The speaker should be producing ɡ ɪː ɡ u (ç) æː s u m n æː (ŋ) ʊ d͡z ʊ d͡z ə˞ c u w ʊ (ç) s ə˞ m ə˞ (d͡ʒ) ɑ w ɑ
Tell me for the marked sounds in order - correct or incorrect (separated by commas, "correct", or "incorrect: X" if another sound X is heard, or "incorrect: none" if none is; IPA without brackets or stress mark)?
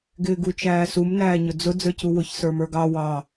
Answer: incorrect: t͡ʃ, incorrect: ɲ, correct, incorrect: ɡ